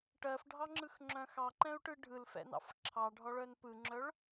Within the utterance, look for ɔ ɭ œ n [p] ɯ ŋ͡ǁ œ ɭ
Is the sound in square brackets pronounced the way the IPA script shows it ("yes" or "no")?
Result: yes